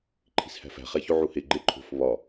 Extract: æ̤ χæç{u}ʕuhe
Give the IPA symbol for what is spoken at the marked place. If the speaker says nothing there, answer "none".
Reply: o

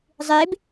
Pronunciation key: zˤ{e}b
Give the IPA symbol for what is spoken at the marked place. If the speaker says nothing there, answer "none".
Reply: e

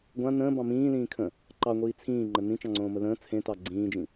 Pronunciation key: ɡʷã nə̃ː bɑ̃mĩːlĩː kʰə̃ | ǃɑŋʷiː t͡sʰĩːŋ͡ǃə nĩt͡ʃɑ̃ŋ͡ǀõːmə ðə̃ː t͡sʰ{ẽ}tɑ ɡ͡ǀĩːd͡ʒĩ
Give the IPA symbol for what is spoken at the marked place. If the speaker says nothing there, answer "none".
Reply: ẽ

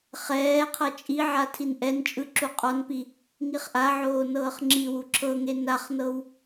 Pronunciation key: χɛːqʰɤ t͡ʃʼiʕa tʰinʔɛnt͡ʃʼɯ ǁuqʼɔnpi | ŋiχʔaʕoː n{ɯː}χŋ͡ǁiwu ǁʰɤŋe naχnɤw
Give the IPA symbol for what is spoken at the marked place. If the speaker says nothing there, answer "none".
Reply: ɤː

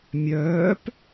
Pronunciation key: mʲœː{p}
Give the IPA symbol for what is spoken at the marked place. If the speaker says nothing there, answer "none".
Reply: p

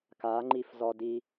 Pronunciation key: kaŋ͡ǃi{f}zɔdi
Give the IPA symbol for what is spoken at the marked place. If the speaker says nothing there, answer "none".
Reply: f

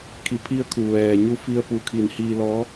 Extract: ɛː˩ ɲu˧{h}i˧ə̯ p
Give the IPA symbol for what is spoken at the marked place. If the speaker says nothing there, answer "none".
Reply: f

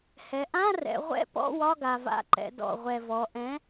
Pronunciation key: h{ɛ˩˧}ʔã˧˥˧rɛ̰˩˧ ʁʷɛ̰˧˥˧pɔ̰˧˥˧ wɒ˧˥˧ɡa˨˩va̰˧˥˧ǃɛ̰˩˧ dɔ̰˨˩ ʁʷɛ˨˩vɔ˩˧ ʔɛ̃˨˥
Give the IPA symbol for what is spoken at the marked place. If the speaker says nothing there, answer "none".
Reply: ɛ˩˧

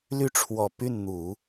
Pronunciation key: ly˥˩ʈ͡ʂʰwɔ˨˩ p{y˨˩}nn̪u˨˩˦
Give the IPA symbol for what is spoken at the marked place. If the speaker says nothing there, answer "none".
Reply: y˥˩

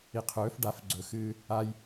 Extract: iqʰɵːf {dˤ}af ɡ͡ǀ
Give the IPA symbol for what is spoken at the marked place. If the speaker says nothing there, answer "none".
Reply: ɖ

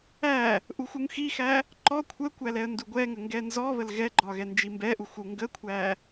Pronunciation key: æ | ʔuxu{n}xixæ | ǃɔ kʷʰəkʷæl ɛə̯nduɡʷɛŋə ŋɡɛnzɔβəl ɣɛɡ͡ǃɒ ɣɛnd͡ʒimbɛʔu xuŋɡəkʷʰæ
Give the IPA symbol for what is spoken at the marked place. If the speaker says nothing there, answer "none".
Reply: ŋ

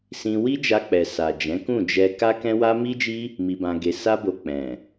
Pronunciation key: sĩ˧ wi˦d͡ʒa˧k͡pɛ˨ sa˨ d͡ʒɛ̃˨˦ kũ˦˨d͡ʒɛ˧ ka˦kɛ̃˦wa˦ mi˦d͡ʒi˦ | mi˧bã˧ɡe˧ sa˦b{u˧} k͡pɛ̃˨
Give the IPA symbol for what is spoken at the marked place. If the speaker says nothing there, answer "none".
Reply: o˧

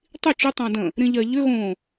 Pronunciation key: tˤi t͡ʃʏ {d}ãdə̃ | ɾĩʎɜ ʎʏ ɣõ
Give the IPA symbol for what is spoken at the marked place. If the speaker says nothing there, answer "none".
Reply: tˤ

